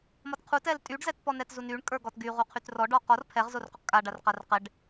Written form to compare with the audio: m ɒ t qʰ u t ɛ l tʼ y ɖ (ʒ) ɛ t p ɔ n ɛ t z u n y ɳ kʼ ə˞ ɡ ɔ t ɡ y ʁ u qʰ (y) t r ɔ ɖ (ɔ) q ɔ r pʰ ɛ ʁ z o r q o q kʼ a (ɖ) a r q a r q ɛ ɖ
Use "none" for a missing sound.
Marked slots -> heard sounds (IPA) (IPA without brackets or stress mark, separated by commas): z, y, ɔ, ɖ